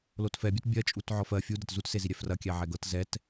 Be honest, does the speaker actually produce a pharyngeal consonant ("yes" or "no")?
yes